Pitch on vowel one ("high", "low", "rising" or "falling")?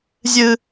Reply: high